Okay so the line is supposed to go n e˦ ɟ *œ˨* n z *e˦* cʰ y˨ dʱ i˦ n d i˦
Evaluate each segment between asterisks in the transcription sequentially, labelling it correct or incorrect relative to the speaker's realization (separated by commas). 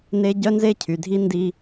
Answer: incorrect, correct